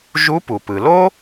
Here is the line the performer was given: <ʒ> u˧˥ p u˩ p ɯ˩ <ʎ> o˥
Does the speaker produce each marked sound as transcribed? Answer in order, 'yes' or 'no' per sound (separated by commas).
yes, no